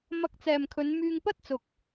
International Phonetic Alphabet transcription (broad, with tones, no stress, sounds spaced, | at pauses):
m ɐ˧ k̚ t͡s ɛː˨ m kʰ ɵ˨˧ n m yː˧ ŋ p ɐ˥ t̚ t͡s ʊ˨ k̚